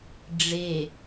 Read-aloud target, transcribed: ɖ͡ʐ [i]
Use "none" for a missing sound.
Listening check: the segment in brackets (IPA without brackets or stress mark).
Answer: e